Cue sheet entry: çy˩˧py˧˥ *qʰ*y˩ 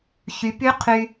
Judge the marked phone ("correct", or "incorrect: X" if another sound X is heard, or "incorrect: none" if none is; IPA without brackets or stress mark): correct